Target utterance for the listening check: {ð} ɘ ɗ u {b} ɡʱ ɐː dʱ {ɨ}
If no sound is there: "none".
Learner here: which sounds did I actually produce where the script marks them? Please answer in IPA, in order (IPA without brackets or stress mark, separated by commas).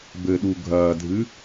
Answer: b, none, ɨ